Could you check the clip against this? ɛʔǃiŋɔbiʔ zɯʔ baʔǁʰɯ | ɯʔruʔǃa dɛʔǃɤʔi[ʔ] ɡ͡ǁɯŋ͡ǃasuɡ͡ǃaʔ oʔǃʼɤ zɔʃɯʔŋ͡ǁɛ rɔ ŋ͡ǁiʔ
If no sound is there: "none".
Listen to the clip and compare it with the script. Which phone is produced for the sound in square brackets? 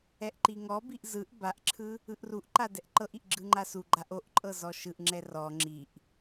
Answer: ʔ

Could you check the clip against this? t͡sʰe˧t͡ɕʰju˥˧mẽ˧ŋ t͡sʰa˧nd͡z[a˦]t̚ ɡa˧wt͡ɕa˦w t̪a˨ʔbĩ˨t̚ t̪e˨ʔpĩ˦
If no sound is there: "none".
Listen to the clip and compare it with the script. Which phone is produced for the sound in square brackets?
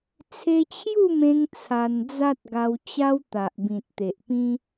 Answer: a˦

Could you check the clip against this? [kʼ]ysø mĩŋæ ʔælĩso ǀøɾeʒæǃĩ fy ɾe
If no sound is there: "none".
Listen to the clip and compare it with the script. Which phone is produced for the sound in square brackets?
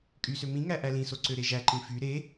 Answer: kʼ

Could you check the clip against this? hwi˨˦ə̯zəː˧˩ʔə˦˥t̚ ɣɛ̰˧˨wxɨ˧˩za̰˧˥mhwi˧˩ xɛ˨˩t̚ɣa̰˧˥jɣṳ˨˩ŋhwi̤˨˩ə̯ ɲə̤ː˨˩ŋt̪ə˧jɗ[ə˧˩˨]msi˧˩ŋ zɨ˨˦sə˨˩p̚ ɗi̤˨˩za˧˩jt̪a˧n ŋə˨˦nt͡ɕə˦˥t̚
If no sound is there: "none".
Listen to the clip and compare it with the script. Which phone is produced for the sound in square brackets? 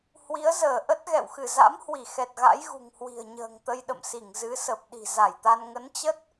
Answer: ə̰˧˨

